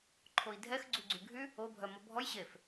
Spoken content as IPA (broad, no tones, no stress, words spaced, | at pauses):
ǃʰoi̯dʱɛx ɡ͡ǀuɡ͡ǀyɡʱy | o bʱœmɔbʱɔj ɕef